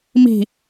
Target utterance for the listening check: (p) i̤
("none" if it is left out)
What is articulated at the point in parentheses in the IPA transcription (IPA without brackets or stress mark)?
m